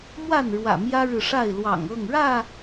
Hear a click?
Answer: no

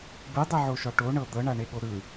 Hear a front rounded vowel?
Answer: no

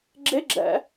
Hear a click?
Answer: yes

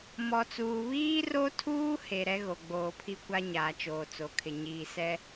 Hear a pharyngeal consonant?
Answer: no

